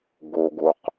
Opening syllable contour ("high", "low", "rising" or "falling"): low